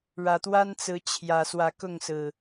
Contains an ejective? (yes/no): no